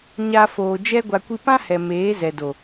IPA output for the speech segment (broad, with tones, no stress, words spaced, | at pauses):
ɲa˧ foː˨d͡ʒɛ˦ɡʷa˧ kʷi˧pã˦hɛ˨ meː˨˦ zɛ˨do˨